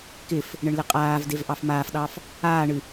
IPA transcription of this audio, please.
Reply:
k ɪ f | ɳ ɘ ɳ l ɪ qʼ aː v d e v ʔ ɑ f m aː f ɗ ɑ f | aː ɳ ɨ

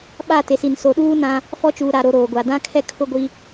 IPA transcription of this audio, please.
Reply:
ɓ a˦˨ t e˨ s i˨ n s o˨ ɗ uː˦ n ã˦ | f ɔ˦ t͡ʃ uː˨ ɾ a˨ ɾ o˨ ɾ oː˨ ɡʷ a˨ d ã˦ kʰ ɛ˦ kʰ ʊ˦ ɡʷ i˦

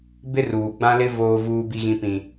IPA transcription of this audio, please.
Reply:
b ɪ˦ r uː˨ ɡ͡b ã˦ l ɪ˦ v oː˦ v uː˦ b i˦ ɣ ĩ˦ p ĩ˦

